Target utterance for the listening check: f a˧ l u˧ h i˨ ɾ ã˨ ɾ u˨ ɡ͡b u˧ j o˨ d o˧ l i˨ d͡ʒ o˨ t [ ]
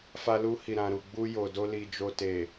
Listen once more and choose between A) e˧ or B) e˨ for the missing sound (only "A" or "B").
B